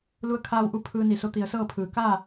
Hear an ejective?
no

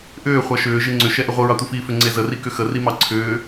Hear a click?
yes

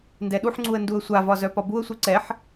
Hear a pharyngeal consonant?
yes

